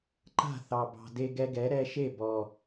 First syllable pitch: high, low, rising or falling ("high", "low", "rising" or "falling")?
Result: falling